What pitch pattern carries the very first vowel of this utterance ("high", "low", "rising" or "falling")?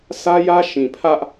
high